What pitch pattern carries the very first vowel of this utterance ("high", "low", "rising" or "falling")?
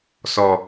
low